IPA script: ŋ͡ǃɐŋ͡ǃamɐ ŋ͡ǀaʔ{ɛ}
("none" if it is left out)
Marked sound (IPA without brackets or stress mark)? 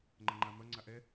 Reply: ɛ